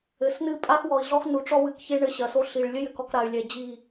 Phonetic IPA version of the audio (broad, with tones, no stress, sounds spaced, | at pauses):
ɘ˨ s n ɨ˦˨ pʼ a˦ x w ɔ˨ i̯ ɮ ɔ˦ x n u˨ ʈ͡ʂ ɔ˦ w ɨ˨ k ç e˦ ɳ ɘ˦˨ ɕ ɐ˨ s o˦ ɬ i˨ ɭ lʲ ɘ˦ j ɘ˨ k ɔ˨ k ɾ a˨ y̯ lʲ ɛ˨ d͡ʑ i˦˨